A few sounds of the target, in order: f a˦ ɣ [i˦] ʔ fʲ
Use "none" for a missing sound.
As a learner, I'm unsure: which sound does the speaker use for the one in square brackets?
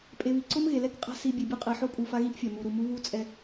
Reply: i˥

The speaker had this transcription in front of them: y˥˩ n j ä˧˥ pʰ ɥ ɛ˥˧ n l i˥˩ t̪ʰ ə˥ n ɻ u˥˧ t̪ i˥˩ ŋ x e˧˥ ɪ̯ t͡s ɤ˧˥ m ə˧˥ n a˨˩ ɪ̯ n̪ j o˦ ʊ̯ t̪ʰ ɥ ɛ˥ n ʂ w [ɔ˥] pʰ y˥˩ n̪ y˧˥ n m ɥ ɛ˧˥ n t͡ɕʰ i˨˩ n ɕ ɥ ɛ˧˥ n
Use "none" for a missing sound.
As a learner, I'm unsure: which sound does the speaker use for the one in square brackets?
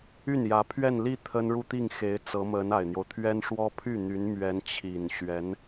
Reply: ɔ˥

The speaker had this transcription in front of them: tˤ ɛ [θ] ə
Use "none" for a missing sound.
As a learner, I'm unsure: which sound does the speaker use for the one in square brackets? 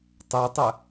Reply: tˤ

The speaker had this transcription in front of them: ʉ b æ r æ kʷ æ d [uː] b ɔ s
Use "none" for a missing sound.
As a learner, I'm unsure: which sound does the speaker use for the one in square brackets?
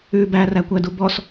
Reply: u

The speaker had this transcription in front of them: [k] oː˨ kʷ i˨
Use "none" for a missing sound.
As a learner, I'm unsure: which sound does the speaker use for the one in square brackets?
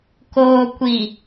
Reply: k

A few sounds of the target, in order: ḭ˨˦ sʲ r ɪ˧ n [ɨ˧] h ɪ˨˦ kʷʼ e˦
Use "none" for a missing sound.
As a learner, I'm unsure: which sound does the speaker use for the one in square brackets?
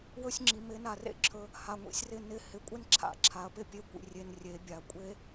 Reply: ɪ˧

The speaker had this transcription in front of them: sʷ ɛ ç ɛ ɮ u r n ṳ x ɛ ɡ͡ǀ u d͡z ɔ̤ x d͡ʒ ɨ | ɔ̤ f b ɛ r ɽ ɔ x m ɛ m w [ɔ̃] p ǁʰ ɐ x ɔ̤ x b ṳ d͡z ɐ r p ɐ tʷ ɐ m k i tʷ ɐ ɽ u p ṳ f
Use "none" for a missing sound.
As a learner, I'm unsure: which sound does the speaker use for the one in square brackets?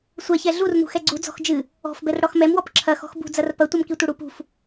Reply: ɔ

